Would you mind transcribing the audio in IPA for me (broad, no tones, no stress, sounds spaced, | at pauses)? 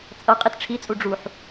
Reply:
t͡sʼ ʌ qʼ i t ʈ͡ʂʰ i t͡sʼ u ɖ͡ʐ u ħ